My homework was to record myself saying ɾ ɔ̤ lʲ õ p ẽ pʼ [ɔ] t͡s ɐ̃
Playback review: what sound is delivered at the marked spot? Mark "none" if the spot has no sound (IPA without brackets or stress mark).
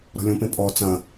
ɔ